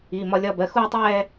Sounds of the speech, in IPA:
iː˩˧˩mɒ˧lʲɒ˧˥˧ bɜ˩˧˩xuː˥˧tˤɛː˥˧

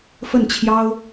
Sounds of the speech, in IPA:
fə˥˩nt͡ɕʰjɑ˥ʊ̯

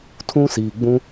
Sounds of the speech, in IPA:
tʰũ˦siː˨ɡ͡bũ˦

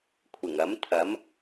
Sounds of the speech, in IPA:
kʷʰɪ˨˩ŋɐ˨˥mt̪ʰɐ˨˥m

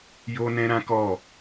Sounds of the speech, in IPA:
jo˦nɛ̃˦ɾã˦ kɔ˦˨

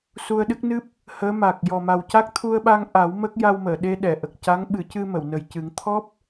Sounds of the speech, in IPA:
su˧ə̯ɗɨ˦˥k̚nɨ˦˥p̚ | həː˧˥ma˨˩k̚ jɔ˨˩ma˨˩wca˦˥k̚ t̪ʰu˧ə̯ ɓa˧ŋʔa˨˩˦w mə˦˥k̚ ja˧wməː˨˩˨ ɗe˧ɗɛ˨˩˨ʔə˨˩k̚ ca˧˥ŋ ɓɨ˨˩˦cɨ˧ mə˨˩˨wnə˨˩j cɨ˨˩˦ŋt̪ʰɔ˦˥p̚

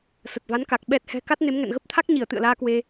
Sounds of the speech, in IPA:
sə˨˩t̚va˨˦nka˨˩k̚ ɓɛ˨˩t̚hɛ̤˨˩ ka˦˥t̚ne˨˦mŋɛ̰˧˨n ɣə˦˥p̚t̪ʰa˦˥k̚ɲi˧˩ə̯ t̪ɨ̰˧˨ə̯laː˧kwe˧

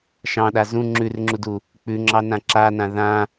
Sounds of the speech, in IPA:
ʃɑ̃ɗa zũ ŋ͡ǁʉrŋ͡ǁudu | k͡pʉŋ͡ǁɑnã ǁanã ðã

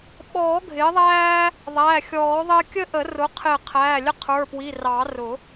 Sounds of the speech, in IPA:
ɓɔː˨˩˦ɡʱɪː˩˥ðˤæː˦ | ðˤæ˩˧˩xʲɔː˨˩˦ðˤɪː˦ kʲə˦ʔə˨˩˦rʊ˩˥ qʰɪː˧˩qʰæː˩˧˩lʲə˦ qʰə˞˩˧˩pwi˩˧˩rɑ˨˩˦rʊ˨˩˦

